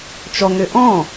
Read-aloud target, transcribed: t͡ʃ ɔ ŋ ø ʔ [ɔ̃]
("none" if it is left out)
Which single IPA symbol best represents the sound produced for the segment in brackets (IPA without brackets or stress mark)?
ɔ̃